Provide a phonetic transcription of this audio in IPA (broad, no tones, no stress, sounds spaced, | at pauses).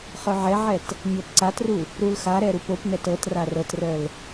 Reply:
χ œ ʕ ɛ ʕ ɛ t | ɲ ɤ p ǀ a t r u | ɾ u l x a ɾ ɛ ɾ u p o p n ɛ t ɤ t r a r ɤ t r œ l